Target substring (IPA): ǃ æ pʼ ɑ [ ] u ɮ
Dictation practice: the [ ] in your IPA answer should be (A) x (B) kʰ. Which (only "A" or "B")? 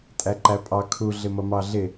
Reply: B